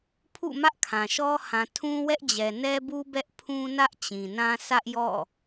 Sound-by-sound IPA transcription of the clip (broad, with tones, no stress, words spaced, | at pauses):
pʰṵ˦˨mä˦ʔ kʰã˨ʃɔ˦ hã˨tʰũ˦wɛ˦ʔd͡ʑɛ˨ nɛ˦bu˦ bɛ˦ʔpʰũ˦nä˦ʔ t͡ɕĩ˨nã˦ sʰä˦ʔjɔ̰˦˨